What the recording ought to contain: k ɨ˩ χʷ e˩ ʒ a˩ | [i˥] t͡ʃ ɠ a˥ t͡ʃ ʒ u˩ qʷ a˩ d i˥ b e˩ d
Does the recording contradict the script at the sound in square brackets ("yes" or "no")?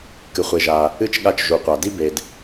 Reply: yes